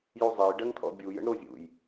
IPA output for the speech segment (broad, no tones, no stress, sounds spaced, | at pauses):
j u zˤ e j ɖ ɜ ŋ t̪ʰ ɔ̰ bʲ u j ə̰ ɳ ɾ o zʲ ṵ j